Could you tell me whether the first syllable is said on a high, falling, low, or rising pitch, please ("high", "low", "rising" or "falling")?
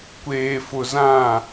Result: low